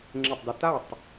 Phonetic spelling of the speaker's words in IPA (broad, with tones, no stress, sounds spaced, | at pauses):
ŋ͡ǁ e˧˩ tˤ d u˧ t a˥˨ tˤ